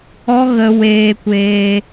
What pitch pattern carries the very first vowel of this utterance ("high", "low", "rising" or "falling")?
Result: high